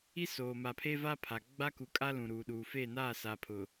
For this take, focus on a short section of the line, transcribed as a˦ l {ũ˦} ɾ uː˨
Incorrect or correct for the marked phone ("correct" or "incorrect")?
incorrect